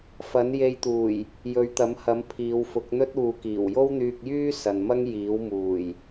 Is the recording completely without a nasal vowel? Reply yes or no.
yes